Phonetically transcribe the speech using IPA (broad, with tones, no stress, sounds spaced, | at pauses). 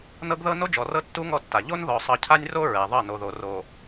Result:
n ɤ˦ ɡ ð ɤ˦ n o˦ d͡ʒ ɔ˨ r ɤ˦ tː u˦ ŋ ɔ˦ tː a˨ ʎ o˦ n ð ɔ˨ sˤ ɤ˨ cʰ a˦ nʲ r o˦ ɹ ɛ˨ ðˤ ɤ˦˨ n o˨ ð o˨ r o˨